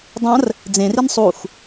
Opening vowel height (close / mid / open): open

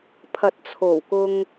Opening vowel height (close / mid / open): open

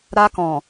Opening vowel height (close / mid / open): open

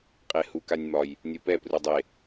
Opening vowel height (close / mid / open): mid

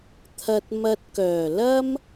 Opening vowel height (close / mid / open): open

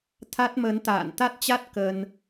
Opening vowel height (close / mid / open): open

